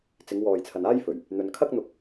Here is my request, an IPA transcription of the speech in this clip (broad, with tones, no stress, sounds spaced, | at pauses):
t͡s ɪ˨˧ ŋ w ɔː˨ j t͡sʰ ɐ˨ n aː˥ j f ɵ˨˩ ɥ | n̪ ɵ˨ n kʰ ɐ˥ k̚ n̪ ʊ˧ k̚